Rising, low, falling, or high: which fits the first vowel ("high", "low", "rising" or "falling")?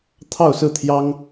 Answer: falling